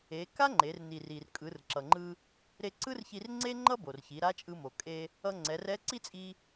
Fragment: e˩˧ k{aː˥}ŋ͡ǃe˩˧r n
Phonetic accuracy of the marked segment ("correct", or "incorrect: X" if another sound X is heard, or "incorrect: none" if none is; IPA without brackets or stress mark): incorrect: a˥